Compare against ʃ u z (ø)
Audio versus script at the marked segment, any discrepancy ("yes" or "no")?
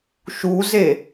yes